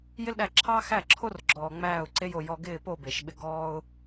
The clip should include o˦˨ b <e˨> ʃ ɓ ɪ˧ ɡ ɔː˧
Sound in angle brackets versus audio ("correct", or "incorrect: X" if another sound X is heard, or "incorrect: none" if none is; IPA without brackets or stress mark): correct